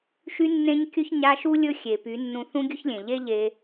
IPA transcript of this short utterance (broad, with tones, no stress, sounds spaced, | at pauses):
ʃ y˧ nː ẽ˧ ɲ kʲ ɵ˧ ç ɲ a˧ ʃ u˦ lʲ ɵ˦ xʲ e˨ p y˨˦ nː ũ˧ θ ũ˦ ɡʲ ɵ˦ ç lʲ ẽ˨ ʎ e˦ ʎ e˧